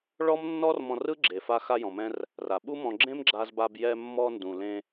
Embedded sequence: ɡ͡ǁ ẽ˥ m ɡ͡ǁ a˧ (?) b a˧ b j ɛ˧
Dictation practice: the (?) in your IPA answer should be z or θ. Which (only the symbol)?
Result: z